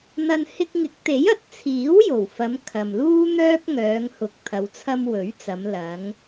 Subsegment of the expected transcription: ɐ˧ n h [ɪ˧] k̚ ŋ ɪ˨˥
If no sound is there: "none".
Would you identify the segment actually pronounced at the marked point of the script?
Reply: ɪ˧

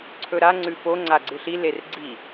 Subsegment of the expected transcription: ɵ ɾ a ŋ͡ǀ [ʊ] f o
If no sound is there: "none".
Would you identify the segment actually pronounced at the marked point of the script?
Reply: ʉ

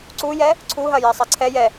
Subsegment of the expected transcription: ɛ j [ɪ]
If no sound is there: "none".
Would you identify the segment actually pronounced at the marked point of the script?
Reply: ɛ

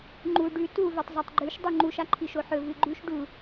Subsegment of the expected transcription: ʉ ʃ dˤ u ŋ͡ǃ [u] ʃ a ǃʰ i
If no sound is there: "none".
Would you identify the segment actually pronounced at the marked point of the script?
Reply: u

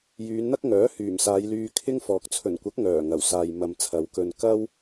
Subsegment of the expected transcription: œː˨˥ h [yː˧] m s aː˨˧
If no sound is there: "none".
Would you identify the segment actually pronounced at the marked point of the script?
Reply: yː˨˩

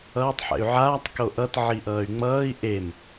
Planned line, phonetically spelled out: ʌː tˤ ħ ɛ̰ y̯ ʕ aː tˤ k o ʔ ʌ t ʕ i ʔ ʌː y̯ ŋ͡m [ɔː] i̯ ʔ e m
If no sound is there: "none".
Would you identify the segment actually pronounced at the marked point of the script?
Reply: ʌː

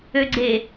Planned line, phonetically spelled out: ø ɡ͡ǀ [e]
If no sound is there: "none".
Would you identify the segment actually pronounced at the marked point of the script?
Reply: e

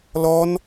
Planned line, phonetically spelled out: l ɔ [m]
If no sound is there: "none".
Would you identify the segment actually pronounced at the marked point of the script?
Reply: n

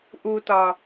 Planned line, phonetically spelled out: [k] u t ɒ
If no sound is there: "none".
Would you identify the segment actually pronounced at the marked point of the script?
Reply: ʔ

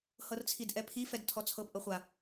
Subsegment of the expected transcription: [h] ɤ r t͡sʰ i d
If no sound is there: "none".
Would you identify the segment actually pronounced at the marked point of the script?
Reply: h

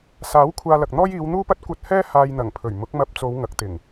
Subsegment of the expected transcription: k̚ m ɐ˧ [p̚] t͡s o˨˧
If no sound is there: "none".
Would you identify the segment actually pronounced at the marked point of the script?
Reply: p̚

